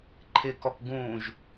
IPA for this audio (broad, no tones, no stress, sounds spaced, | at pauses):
ǃʰ ɪ k ɔ k ɡ ũː ʒ